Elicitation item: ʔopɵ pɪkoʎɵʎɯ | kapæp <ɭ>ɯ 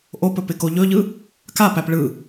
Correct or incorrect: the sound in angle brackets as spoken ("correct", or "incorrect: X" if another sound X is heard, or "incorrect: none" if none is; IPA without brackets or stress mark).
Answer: correct